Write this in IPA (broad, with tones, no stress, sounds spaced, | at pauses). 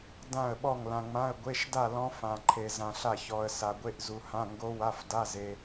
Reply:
d ã˥˨ ə̯ ɓ ɔ˥˨ ŋ l ã˧ ŋ͡m ã˧˥˧ ə̯ ɡʷ e˧˥˧ ʃ d a˥˨ l ɔ̃˦˥ f ã˧ ǃʰ e˧ z ã˧ ɬ a˥˨ ç ɔ˧ ə̯ s a˧ ɡʷ e˦˥ ʔ z u˧ h ã˧˥˧ ŋ ɡ o˦˥ w a˧˥˧ f d a˧˥˧ z e˧